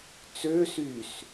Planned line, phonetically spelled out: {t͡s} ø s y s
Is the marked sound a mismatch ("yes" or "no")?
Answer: no